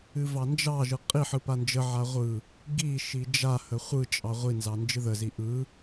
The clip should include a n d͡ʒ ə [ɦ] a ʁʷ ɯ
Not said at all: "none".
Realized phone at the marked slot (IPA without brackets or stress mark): ʕ